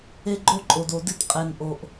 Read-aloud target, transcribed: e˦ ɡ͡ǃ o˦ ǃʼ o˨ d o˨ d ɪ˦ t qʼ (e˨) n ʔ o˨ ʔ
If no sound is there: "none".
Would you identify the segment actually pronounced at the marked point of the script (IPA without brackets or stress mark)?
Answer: e˨